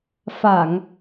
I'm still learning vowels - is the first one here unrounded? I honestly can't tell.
yes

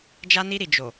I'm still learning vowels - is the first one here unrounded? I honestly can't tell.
yes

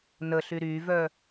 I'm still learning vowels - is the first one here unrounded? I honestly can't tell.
yes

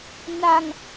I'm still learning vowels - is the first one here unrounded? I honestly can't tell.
yes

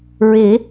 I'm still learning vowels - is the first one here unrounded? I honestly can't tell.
yes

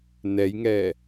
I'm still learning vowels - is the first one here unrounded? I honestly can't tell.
yes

